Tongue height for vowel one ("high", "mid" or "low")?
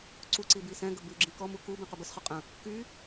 high